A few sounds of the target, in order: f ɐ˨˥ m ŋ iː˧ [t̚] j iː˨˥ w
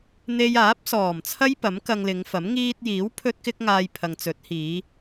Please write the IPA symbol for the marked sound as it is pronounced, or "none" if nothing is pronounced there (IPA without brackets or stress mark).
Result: t̚